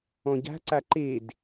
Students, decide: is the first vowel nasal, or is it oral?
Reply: nasal